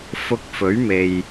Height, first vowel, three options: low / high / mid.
high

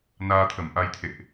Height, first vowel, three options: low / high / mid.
low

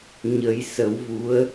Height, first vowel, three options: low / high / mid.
mid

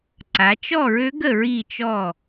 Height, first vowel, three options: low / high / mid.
low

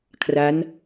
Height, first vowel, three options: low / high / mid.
low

